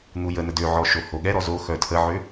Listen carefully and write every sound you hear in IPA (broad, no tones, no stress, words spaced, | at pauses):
n̪ujənə døʕɔ ʃohoɠɛɾɔ zoxœ tʰəʕø